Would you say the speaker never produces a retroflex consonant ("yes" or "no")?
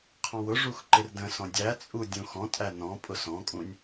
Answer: no